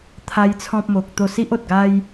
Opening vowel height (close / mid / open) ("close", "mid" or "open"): open